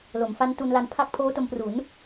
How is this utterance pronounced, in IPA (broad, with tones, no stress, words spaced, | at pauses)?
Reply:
lo˩˦mfa˦˥n tu˧nla˧npʰa˥˩k̚ pʰoː˦˥to˧mpru˩˦n